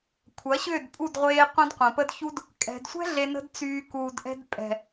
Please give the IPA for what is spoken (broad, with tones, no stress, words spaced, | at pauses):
kʷʰɐ˨˦ɕʏː˦˨dpʼu˦˨dʁʷeː˧ qʷɐ̃˦dqʷɐ̃˨pə˦dçu˦d | kʼɛ̤˨dsʷɛ̤˦ ɮe˧nə̤˦dt͡syː˧ kuː˧d ʔɛ̤˧dpʼɛ̤˨